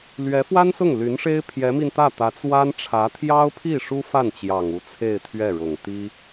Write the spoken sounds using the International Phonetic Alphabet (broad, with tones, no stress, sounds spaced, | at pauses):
l ɥ ɛ˧˥ f w a˥ n s ʊ˥˩ ŋ l y˧˥ n ʂ e˥ ɪ̯ pʰ j ɛ˧˥ m i˧ n t̪ ä˥˩ t̪ ä˧˥ t͡s w a˥ n ʈ͡ʂʰ ä˧˥ t̪ʰ j ɑ˥ ʊ̯ pʰ i˥˩ ʂ u˥ f a˥˩ n t͡ɕ j ɑ˨˩ ŋ u˧˥ t͡sʰ e˥˧ ɪ̯ t̪ʰ ɥ ɛ˥˩ ɻ ʊ˨˩ ŋ t̪ i˥